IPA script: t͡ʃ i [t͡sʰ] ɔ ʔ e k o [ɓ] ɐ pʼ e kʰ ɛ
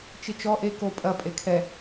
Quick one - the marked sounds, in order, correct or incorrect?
incorrect, incorrect

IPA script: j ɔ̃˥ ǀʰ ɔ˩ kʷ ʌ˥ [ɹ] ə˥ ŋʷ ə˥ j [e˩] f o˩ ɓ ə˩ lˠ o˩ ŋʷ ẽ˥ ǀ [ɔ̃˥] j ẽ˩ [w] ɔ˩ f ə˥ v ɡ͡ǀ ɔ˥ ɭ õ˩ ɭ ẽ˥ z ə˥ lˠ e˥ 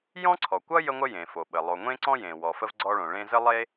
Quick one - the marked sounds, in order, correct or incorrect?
incorrect, incorrect, correct, correct

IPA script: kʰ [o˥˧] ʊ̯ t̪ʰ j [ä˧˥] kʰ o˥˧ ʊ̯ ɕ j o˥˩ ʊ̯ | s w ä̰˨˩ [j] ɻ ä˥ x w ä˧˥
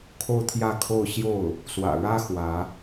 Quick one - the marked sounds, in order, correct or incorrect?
correct, incorrect, incorrect

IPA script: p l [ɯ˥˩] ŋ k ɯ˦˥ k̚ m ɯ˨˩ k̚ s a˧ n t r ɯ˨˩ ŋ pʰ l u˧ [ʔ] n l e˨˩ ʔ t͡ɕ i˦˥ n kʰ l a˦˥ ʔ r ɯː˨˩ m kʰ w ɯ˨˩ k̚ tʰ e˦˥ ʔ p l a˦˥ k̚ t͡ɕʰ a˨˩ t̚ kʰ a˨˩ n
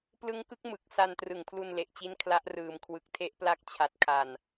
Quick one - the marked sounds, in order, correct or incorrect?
incorrect, incorrect

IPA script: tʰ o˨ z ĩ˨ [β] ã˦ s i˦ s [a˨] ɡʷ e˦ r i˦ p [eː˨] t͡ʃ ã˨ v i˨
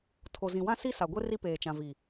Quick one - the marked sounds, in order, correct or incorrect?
incorrect, correct, correct

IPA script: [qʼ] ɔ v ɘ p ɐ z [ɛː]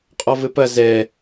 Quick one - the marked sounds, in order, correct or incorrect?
correct, incorrect

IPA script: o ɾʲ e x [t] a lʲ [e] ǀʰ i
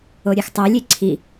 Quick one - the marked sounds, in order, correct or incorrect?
incorrect, correct

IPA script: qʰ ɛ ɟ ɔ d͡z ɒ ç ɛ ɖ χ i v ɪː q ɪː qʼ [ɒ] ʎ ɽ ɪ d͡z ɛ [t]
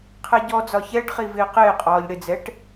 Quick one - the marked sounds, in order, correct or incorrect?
incorrect, incorrect

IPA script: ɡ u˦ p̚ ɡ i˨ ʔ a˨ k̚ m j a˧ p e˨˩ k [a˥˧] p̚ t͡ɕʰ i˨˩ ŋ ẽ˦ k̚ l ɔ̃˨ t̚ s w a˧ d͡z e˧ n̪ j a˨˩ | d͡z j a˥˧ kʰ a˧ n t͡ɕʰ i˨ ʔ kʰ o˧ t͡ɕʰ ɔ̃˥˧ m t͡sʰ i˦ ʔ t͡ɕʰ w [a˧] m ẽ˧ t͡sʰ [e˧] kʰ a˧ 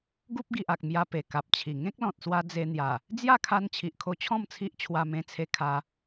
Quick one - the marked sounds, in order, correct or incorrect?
incorrect, correct, correct

